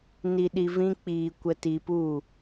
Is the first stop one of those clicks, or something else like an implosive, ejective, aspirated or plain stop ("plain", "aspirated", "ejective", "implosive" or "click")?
implosive